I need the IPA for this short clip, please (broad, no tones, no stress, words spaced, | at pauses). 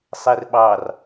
sˤerɓɑr